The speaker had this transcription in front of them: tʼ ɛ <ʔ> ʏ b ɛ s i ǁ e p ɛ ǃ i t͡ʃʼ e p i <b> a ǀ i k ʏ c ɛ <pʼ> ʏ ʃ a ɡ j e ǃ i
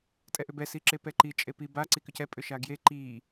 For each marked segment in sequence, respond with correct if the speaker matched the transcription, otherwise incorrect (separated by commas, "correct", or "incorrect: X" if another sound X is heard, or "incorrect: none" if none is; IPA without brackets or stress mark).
correct, correct, correct